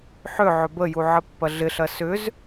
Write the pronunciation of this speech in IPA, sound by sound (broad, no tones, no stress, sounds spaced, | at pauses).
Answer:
ħ ʏ ʕ ʏ b ə j u ʕ ə pː ɐ ɮ ɪ ɬ ɐ s ʏ z